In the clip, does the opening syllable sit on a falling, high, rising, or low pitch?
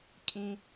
low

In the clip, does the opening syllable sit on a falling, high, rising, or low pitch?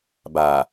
low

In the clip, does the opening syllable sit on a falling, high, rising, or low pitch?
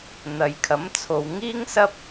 low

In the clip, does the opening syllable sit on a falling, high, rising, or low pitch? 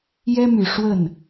high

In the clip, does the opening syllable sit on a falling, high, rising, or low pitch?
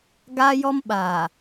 high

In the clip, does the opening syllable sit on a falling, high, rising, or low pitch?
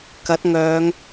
rising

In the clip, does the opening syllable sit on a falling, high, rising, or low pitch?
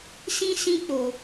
high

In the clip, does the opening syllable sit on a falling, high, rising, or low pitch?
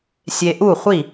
low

